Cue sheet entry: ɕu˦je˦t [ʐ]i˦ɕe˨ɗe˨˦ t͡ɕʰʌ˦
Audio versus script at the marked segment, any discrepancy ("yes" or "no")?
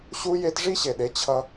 no